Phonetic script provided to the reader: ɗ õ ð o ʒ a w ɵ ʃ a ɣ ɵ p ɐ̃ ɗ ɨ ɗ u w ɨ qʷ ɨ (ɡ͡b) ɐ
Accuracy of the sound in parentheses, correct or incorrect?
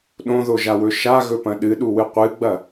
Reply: correct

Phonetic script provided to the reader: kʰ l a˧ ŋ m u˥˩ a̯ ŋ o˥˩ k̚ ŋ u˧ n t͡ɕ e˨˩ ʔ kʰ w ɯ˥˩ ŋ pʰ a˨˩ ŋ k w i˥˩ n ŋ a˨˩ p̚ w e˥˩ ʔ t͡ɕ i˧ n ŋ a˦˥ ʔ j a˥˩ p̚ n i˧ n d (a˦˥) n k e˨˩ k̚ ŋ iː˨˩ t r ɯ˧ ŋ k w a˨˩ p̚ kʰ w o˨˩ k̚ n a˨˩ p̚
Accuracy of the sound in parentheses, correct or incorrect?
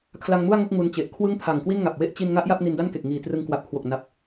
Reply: incorrect: a˥˩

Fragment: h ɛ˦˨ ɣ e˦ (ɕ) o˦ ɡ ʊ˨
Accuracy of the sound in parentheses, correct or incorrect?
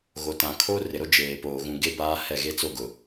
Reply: incorrect: t͡s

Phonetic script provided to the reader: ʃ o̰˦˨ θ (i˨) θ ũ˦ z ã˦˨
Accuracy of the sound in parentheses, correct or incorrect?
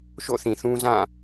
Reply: incorrect: ĩ˨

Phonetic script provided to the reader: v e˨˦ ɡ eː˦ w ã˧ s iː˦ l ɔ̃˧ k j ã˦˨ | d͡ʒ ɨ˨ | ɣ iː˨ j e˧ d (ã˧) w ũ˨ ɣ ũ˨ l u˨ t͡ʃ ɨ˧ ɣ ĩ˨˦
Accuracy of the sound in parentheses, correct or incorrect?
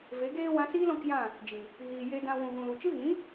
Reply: correct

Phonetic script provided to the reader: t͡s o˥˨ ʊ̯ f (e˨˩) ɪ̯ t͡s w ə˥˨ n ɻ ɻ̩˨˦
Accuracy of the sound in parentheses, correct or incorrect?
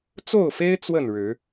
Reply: incorrect: e˦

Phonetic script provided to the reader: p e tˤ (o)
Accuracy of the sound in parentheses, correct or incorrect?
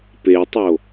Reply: correct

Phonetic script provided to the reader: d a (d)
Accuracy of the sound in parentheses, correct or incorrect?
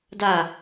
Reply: incorrect: none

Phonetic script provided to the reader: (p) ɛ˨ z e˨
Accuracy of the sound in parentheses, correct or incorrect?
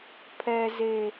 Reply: incorrect: pʰ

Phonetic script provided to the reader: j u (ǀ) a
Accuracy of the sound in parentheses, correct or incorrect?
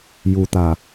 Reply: incorrect: t̪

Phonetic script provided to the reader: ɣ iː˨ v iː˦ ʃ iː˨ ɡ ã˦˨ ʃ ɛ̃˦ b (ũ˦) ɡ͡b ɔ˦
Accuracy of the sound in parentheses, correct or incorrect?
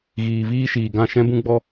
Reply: correct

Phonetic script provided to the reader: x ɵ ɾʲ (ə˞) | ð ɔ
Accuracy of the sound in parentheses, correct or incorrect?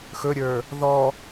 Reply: correct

